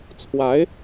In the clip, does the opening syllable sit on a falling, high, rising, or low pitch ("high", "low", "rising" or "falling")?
rising